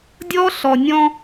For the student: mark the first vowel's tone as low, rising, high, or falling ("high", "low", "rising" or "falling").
high